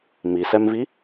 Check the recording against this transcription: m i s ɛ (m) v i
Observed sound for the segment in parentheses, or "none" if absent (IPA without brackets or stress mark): m